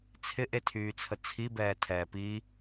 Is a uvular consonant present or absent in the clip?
absent